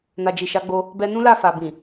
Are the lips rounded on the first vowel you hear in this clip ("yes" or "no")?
no